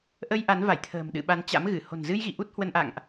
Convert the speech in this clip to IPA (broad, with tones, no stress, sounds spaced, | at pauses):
ʔ ə˧ j ʔ a˨˦ n v a˧˩ j t̪ʰ ə̤ː˨˩ m ɗ ɨ̰˧˨ ɓ a˨˦ n t͡ɕ a̰˧˥ m ɣ ɨ˧˩ h o̤˨˩ n z ɨ˧ j ɣ ḭ˧˨ ʔ u˦˥ t̚ h w ə˧ n ʔ a̰˧˨ ŋ ʔ